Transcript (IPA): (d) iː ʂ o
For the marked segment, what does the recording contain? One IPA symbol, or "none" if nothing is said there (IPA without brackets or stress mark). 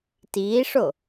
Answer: t